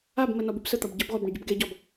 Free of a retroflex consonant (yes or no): no